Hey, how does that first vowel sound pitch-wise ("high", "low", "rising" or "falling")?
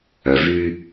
low